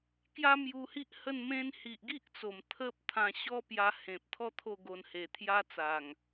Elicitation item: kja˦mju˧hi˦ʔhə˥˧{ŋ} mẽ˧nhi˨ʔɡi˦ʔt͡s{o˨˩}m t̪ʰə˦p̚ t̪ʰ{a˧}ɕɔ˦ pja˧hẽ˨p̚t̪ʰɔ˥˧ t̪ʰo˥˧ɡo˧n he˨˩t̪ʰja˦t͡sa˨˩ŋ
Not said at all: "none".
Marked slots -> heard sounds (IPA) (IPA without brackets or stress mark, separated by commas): n, o˨˩, ã˧